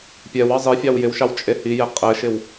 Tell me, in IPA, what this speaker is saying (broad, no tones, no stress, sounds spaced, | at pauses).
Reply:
pʲ ɛ w ɑ zˤ i fʲ ɑ w j ɪ w ʃ ɑ w t͡ʃʼ e h i j ɪ qʼ ɘ ʃ ɪ w